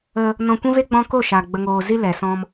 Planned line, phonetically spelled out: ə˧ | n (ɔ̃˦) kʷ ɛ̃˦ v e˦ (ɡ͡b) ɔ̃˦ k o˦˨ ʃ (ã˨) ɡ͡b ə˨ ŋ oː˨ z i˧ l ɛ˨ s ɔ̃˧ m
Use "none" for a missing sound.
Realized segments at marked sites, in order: ɔ̃˧, ɡ͡b, a˨

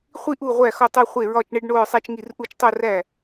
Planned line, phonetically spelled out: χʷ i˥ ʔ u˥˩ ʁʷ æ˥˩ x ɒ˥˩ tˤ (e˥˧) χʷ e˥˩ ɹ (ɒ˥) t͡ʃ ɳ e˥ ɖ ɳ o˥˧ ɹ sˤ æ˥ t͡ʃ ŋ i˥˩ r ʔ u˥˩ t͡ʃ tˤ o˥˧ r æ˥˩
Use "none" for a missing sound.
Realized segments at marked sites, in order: e˥˧, ɒ˥˧

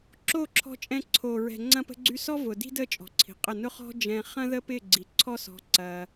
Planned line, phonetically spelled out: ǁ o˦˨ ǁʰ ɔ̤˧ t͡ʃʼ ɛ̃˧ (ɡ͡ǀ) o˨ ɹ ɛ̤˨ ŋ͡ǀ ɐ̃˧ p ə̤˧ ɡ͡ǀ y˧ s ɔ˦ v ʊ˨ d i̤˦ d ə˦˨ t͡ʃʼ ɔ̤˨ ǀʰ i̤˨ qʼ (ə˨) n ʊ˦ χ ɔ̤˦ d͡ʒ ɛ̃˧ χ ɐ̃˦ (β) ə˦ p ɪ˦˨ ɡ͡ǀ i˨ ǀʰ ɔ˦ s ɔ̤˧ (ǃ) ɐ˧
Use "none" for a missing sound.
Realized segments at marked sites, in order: ǀʰ, ə˦˨, ð, ǀ

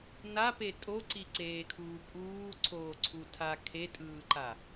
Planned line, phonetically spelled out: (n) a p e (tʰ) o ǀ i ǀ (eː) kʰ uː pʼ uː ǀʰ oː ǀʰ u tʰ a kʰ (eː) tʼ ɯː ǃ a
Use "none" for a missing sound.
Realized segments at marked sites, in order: n, tʼ, eː, e

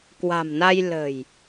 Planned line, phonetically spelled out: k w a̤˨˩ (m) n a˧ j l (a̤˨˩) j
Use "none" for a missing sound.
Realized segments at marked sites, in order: m, ə̤˨˩

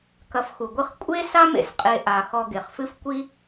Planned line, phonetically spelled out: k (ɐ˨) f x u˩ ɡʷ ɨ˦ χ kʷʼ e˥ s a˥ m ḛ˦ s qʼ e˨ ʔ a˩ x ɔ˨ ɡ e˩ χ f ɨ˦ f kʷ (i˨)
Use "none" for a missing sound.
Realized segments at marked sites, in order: ɐ˨, i˥

